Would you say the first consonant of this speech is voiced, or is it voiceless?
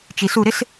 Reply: voiceless